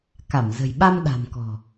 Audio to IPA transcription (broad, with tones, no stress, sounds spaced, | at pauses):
k a˧˩ m z ə̤˨˩ j ɓ a˧ m ɗ a̤˨˩ m k ɔ̤˨˩